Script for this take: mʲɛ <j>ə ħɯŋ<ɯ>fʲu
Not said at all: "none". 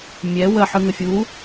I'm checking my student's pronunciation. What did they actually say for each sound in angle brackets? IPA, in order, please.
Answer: w, ə

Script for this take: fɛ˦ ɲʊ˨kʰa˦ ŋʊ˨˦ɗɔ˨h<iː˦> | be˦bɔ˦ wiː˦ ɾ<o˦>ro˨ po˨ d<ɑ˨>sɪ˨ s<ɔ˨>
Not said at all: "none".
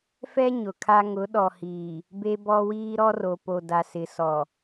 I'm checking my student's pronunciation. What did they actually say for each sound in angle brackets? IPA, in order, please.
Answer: iː˨, ɔ˦, a˨, ɔ˨

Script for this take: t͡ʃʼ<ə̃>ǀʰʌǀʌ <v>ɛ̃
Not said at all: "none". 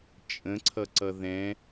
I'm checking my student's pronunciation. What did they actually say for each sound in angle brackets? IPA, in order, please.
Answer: ə̃, ð

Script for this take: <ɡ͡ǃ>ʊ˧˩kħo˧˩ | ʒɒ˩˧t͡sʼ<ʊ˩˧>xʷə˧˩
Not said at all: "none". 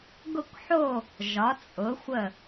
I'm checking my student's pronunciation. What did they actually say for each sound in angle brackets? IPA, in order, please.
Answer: ɡ, ʊ˩˧

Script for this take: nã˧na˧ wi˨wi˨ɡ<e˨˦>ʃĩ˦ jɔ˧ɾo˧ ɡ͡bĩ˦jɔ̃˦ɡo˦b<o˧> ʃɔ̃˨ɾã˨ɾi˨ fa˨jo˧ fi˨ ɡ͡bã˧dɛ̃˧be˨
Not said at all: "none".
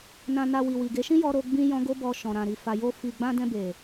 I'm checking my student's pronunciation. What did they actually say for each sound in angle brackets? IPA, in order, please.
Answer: e˨˦, ɔ˧

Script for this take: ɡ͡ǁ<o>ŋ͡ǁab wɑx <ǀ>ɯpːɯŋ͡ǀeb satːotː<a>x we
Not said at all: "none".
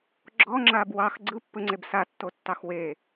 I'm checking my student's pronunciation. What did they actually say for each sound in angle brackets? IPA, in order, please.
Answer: ɔ, ɡ͡ǀ, ɑ

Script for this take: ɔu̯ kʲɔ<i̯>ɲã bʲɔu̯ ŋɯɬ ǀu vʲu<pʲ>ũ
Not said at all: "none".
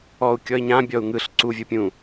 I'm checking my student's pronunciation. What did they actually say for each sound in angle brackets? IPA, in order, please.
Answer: i̯, pʲ

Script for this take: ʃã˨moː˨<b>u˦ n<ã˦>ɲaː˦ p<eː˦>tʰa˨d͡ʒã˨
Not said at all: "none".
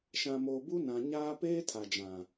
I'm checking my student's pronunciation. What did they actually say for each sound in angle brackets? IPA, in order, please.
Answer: b, ã˨, eː˦

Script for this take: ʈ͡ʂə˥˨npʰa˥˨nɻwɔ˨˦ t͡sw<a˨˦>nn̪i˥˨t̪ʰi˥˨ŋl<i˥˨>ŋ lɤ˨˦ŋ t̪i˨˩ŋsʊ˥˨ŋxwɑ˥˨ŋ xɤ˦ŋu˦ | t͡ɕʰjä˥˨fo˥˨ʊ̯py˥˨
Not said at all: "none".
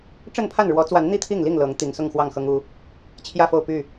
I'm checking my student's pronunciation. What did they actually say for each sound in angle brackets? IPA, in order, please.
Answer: a˨˦, i˥˨

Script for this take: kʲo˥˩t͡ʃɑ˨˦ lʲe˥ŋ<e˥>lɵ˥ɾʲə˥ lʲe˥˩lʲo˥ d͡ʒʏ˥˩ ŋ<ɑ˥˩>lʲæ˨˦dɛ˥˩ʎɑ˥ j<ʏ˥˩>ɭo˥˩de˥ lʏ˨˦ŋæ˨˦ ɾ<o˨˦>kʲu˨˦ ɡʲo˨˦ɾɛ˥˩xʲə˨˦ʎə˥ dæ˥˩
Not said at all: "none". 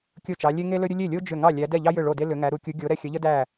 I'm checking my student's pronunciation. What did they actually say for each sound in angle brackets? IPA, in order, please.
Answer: e˥, ɑ˥˩, ʏ˥˩, u˨˦

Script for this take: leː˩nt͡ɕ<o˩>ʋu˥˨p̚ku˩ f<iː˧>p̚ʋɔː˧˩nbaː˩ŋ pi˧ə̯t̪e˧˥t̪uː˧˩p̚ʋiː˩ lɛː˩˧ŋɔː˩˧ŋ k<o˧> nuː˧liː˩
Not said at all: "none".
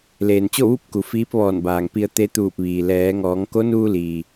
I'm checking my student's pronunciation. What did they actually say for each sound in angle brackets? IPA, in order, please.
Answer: o˥˨, iː˧˥, o˧˥

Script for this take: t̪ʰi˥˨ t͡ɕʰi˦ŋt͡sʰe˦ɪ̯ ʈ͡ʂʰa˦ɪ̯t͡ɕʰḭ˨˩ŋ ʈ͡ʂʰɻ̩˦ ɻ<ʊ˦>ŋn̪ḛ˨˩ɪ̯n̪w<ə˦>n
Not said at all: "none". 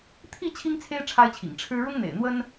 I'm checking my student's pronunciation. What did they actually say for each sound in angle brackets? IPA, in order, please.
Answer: ʊ˦, ə˦

